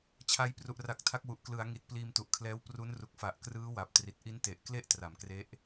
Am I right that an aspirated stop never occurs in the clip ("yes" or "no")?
no